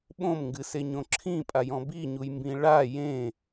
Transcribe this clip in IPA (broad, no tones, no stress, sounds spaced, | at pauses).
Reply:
ɓ õ m ŋ ɡ ɨ s e ɲ õ ǁʰ ĩ pʼ a j ɔ̃ b i ɲ u j m b ĩ ɭ a j ẽ